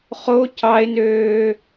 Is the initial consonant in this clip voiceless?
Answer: yes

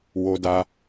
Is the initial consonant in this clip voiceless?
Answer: no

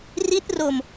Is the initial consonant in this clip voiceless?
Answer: no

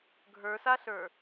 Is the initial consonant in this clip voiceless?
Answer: no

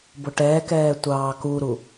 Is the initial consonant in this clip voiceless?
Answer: no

